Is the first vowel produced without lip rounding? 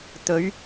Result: no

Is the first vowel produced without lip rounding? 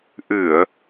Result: yes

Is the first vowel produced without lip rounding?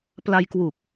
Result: yes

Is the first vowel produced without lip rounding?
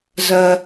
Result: yes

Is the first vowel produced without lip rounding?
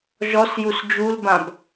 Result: no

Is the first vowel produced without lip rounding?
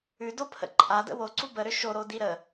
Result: no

